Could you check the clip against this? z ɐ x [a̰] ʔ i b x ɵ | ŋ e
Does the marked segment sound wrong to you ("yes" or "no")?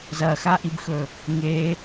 yes